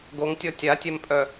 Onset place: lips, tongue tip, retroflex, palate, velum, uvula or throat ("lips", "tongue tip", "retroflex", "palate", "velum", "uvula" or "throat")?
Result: velum